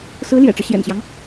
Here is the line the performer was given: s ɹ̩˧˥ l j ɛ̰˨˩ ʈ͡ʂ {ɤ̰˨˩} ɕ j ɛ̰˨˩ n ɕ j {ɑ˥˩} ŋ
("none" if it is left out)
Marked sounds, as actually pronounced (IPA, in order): ɤ˦, ɑ˦

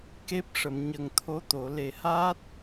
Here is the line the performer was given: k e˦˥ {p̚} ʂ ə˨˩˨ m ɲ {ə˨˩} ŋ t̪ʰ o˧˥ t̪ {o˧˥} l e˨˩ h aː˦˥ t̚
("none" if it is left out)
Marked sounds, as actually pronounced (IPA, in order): p̚, ə˨˩, o˨˩˨

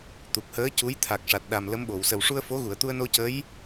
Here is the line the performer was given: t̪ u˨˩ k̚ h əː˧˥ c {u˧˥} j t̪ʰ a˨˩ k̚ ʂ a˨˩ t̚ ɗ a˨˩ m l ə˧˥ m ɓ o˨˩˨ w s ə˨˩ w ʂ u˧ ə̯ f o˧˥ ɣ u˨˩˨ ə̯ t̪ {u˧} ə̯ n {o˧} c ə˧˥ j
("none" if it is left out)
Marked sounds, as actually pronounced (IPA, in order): u˧˥, u˧, o˧

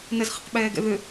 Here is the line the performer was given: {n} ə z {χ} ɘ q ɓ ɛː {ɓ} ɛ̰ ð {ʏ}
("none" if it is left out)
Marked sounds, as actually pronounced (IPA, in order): n, χ, ɡ, ʏ

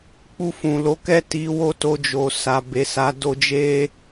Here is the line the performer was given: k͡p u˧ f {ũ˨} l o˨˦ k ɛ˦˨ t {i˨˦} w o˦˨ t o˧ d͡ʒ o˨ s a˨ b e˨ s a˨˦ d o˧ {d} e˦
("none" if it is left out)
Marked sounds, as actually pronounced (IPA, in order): ũ˨, i˨˦, d͡ʒ

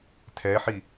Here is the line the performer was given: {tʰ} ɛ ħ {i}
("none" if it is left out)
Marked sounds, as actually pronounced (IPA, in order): tʰ, i

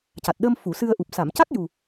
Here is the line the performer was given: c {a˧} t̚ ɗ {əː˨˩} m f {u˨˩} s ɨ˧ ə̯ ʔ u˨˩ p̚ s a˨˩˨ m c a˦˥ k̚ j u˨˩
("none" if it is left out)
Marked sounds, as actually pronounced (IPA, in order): a˨˩, əː˧, u˨˩˨

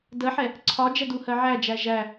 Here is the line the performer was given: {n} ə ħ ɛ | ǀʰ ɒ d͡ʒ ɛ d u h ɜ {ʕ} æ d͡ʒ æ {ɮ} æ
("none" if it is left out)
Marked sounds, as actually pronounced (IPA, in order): d, ʕ, ʒ

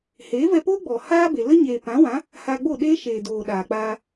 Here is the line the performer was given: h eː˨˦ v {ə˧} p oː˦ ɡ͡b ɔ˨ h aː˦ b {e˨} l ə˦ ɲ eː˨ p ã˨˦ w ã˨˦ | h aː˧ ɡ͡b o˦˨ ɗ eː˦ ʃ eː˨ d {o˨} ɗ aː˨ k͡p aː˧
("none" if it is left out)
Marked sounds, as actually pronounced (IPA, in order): ɛ˧, e˨, oː˨

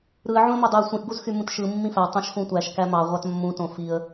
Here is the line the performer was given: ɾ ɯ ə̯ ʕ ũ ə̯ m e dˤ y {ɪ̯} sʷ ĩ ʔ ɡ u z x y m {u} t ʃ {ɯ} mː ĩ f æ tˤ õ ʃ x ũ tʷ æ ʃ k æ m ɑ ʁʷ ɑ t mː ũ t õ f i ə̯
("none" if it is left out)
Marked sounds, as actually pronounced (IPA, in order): ə̯, ũ, ɯ

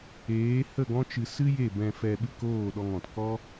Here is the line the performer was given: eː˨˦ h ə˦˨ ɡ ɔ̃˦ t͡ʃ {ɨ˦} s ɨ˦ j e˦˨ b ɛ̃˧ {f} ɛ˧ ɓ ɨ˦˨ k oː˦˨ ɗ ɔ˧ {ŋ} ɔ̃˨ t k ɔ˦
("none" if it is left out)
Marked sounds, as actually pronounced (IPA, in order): ɨ˧, f, ŋ

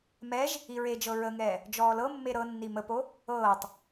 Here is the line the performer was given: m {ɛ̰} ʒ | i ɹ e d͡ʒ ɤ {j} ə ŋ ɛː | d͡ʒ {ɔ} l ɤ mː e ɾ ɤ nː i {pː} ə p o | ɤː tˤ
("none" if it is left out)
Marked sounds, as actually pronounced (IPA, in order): ɛ, ɹ, ɔː, m

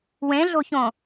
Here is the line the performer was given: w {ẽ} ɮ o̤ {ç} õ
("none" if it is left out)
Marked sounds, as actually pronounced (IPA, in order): ẽ, ç

